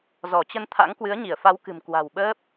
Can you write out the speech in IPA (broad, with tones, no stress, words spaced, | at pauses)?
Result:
zɔ˧˩t͡ɕə˧nt̪ʰa̰˧˥ŋ kwɨ˨˦ə̯ɲi˧˩ə̯fa˨˦wkɨ̤˨˩m kwa̤˨˩wɓəː˦˥p̚